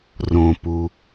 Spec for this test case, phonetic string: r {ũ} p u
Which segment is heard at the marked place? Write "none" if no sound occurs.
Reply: õ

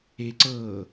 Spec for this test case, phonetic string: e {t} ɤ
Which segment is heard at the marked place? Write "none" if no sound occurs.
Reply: ǀ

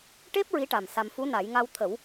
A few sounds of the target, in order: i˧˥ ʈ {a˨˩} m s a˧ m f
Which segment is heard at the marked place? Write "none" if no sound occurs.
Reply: a˨˩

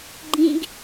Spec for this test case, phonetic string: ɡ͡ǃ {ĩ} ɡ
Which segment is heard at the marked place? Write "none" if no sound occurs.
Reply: ĩ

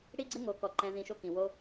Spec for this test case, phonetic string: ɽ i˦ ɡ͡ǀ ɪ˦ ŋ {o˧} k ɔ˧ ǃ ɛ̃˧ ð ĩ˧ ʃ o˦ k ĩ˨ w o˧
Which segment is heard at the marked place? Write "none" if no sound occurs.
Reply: o˧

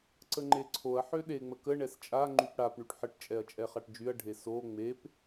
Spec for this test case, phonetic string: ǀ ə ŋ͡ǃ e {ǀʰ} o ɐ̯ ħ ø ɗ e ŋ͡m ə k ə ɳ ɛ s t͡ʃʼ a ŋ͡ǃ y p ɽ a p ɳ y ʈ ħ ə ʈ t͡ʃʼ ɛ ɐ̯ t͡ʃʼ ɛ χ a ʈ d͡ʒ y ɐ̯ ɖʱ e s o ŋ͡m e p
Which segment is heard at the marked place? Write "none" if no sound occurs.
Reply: ǀʰ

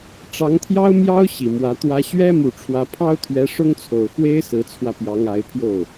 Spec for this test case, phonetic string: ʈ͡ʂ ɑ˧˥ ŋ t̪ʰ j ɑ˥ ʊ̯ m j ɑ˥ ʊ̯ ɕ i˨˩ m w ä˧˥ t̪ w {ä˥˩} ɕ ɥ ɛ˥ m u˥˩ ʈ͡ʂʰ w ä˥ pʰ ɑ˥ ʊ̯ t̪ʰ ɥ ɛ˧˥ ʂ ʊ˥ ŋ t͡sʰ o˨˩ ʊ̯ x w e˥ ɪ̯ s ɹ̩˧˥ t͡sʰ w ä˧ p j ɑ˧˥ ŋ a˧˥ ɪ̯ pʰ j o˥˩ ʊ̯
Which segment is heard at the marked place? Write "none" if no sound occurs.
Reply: ä˥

